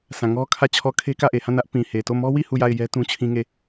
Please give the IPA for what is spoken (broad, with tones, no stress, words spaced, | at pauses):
sʰã˨ŋɔ˦ kʰä˦˨t͡ɕʰɔ˦ kʰe˦kä˦˨ʔe˨ hã˦˨nä˦ʔ pĩ˨he˨to˦˨ mɔ˦wi˦˨ hu˦˨ja˦˨ɪ̯jɛ˦ tũ˦t͡ɕʰĩ˦ŋe˦˨